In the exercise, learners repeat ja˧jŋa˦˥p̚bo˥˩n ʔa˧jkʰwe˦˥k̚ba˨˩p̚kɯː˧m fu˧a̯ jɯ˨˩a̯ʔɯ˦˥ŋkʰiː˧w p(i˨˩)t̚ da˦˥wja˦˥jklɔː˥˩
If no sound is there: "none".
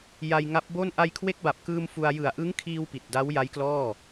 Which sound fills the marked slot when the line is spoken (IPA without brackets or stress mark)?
i˨˩